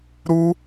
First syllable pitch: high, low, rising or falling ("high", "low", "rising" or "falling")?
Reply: high